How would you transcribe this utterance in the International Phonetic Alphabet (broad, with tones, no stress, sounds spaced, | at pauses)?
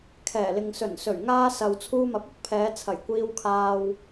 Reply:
kʰ ɛː˨˩ l ɪ˨ ŋ s ɵ˨˩ n s ɵ˨˩ ɥ ŋ aː˧ s ɐ˨ w t͡sʰ uː˧ m ɐ˨˥ p̚ ʊ˥ k̚ pʰ ɛː˨˧ t͡sʰ ɐ˨˩ j kʷ iː˧ w kʰ aː˧ w